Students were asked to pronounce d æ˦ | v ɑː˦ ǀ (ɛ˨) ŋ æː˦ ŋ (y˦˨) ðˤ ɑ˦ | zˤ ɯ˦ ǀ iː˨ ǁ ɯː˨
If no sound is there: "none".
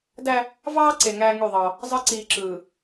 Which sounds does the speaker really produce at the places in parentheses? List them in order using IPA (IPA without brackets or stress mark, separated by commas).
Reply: e˨, y˦˨